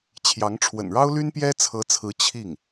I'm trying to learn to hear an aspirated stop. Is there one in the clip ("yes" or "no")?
yes